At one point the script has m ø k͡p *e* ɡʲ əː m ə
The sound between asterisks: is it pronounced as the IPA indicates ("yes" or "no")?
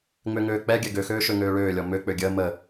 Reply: no